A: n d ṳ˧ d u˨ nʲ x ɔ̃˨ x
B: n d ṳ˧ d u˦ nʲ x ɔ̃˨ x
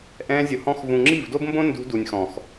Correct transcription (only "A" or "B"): A